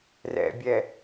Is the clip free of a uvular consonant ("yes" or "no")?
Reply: yes